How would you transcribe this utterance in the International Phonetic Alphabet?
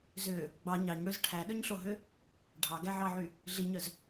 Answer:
z ø | ɡ͡b ɑ ɲ ɑ ɲ ɽ ø z ʈʰ æ ɗ œ ɲ ɬ o ɦ ø | ɖʱ ɑ ɡ æ ʕ ɑ ʕ y | ɮ i ɲ œ z

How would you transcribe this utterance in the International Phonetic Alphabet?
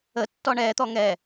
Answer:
ə tː ɔ ɳ ɛ t̪ ɔ ŋ ɛ

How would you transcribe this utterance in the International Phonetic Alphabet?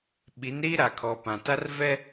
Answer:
ɓ i˨˦ n ɾ iː˦ ɾ a˨ kʰ ɔ˨ p ã˨ t a˦ r v ɛ˦

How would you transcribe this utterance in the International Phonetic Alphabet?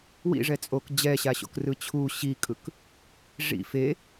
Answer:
w ḭ ʐ ɛ t͡sʼ o k d͡ʑ ɛ ɕ a ɕ o̰ k r ɯ t͡ɕʰ u ɕ i kʼ ɯ k | ʐ ḭ f e

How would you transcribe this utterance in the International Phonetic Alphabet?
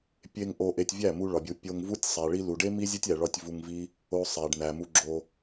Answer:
pʲ e˧ ŋ ʔ o˧ ʔ e˧ tʲ vʲ æ˦˨ m u˧ ɭ ɒ˨ bʲ u˨ pʲ o˧ ŋ v u˦ tʲ sˤ æ˨ ɭ i˧ l u˨ ɖ e˦ m i˦ zʲ o˦ tʲ æ˨ ɭ ɒ˧ tʲ v u˧ ŋ v i˦ | o˧ sˤ æ˨ ɖ n æ˨ m u˧ ɡ͡ǁ o˧

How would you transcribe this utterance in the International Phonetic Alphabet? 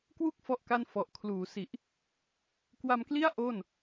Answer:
k w u˥˩ k̚ f ɔ˥˩ ʔ k a˥˩ n f ɔ˨˩ ʔ kʰ l uː˩˦ s i˨˩ ʔ | k w a˧ m k l i˥˩ a̯ ʔ o˥˩ n

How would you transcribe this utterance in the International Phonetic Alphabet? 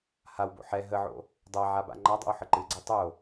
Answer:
h a w b o̰ ħ ɛ ɦ ə ʕ o̰ | dˤ a ʕ a b a̰ ŋ͡ǃ a dˤ ɛ̰ w ħ ə ǃ ɨ ɡ͡ǀ a tˤ o

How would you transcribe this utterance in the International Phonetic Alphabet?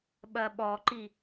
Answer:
ɓ ɐ ɓ ɔ ǃ i

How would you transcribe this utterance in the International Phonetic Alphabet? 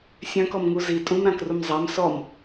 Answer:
sʲ œ̃ k ɔ m ŋ u z i tʼ ũ m ɾ ã k r u m zˤ a m s ɔ m

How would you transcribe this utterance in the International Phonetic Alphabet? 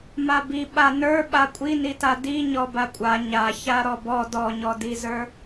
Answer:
m a b i ɓ a n ə˞ ɓ a kʷʼ i n i t a d i ɲ ɔ b a kʷʼ a ɲ a ç a ɾ ɔ b ɔ d ɔ ɲ ɔ d i z ə˞

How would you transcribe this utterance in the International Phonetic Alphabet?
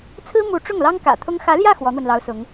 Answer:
t͡sʰ ɹ̩˥ m u˧˥ ʈ͡ʂ ʊ˥˩ ŋ l ɑ˥ ŋ k ä̰˨˩ t̪ʰ ʊ˥ ŋ x ä˧˥ l j ä˥˩ x w ɔ˧˥ n̪ w ə˧ n l ɑ˧˥ ʊ̯ s ʊ˧˥ ŋ

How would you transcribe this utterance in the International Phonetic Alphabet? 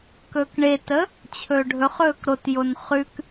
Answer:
k ɵː k ɳ e t ə | t͡ɕʰ ɵː ɖʱ ɵ χ ɵː k ɾ o t j o n χ ʉ k

